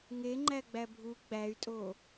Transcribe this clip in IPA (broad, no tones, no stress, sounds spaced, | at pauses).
ŋ e ŋ͡ǃ æ ɡ͡b æ bʱ u ɡ͡b æ y̯ tʼ o